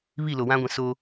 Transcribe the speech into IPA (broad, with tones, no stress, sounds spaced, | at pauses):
β i˦˨ l o˨ w ã˦ ɡʷ ĩ˨ s o˦